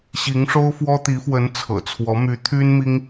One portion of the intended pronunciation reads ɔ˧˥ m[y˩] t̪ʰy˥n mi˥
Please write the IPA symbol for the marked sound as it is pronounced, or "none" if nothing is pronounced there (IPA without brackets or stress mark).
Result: y˧˥